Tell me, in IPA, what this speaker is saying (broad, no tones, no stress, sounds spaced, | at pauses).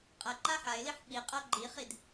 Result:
qʼ ɐ ǃ a ħ a ɪ̯ l i ħ ɓ i qʼ ɐ ɡ͡ǃ i χ i d